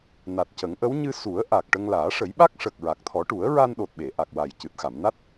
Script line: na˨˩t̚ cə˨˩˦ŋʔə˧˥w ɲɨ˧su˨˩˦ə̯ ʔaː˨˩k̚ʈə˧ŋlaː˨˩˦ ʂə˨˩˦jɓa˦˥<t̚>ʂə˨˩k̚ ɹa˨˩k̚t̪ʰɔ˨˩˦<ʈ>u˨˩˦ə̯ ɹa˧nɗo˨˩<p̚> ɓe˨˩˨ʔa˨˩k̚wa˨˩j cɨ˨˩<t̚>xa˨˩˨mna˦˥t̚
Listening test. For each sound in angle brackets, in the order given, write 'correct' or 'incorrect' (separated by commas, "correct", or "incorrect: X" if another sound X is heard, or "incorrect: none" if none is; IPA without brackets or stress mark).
incorrect: k̚, correct, incorrect: t̚, correct